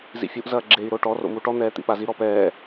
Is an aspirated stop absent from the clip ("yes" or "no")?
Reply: yes